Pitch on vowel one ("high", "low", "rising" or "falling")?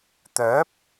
rising